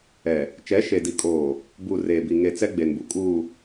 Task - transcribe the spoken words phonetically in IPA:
ɛ˨ | t͡ʃ ɛ˨˦ ʃ e˨ d i˨ kʼ oː˨ | b uː˨ r eː˨ b i˨ ŋ e˨ t͡s ɛ˦ ɡ͡b e˨ n b u˨ kʼ uː˨

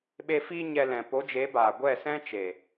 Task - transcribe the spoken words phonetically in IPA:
ɓ e˧ f i˧ ɲ ɛ˧ l ɛ̃˨ p o˨˦ d͡ʒ e˨˦ b aː˨ ɡʷ ɛ˦˨ s ɛ̃˦ t͡ʃ e˨

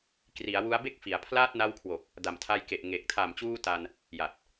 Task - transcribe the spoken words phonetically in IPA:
k r i˩˦ a̯ w u˦˥ a̯ b e˥˩ k̚ f i˩˦ a̯ pʰ l aː˥˩ t̚ n a˧ w kʰ w o˨˩ k̚ | d a˨˩ m tʰ a˧ j k e˨˩ ʔ ŋ e˨˩ k̚ tʰ a˨˩ m t͡ɕ uː˧ t a˧ n | j a˨˩ t̚

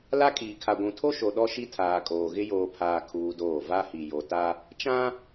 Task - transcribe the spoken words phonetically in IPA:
l a˦ kʼ iː˨ kʰ a˨ ɡʷ ũ˨ tʰ o˦ ʃ o˨ ɗ ɔ˦ ʃ i˦ tʰ aː˨ kʼ oː˨ ɣ ɪ˦ j oː˨ pʰ aː˨ kʰ uː˦ d oː˦˨ v a˦ h i˨ j o˨ t a˦ | t͡ʃ ã˦

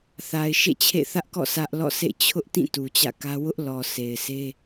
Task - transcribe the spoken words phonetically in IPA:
θ a˨ ɪ̯ ʃ ḛ˦˨ t͡ɕʰ ḛ˦˨ θ ä˦ ʔ k ɔ̰˦˨ s ä˦ ʔ l ɔ̰˦˨ s ḛ˦˨ t͡ɕʰ ʊ˦ ʔ t ĩ˦˨ t u˨ t͡ɕ ä̰˦˨ k ä˦ w ʊ˦ ʔ l ɔ˨ sʰ e˨ ɪ̯ s e˦

